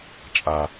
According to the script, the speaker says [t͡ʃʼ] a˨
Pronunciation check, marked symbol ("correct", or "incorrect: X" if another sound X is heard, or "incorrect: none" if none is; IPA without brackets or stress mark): correct